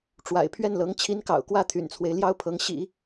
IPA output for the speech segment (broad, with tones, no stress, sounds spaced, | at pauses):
ʈ͡ʂ w a̰˨˩ ɪ̯ pʰ ɥ ɛ˥˩ n l ɤ˧˥ ŋ t͡ɕʰ i˧˥ n k ɑ̰˨˩ ʊ̯ k w ä˥˩ t̪ʰ y̰˨˩ n t͡sʰ w e˦ ɪ̯ l j ɑ˥ ʊ̯ pʰ ɤ˧˥ ŋ ɕ ḭ˨˩˦